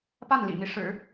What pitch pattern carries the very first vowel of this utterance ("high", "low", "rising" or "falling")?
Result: falling